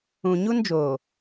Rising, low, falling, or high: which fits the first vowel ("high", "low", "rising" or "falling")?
low